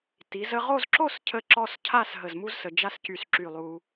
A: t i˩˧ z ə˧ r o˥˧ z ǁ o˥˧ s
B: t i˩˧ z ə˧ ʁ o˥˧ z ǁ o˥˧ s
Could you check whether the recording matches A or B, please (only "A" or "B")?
B